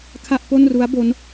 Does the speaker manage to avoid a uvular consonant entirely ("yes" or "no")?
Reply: yes